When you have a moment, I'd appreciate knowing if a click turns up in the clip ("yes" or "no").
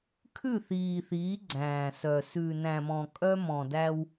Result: yes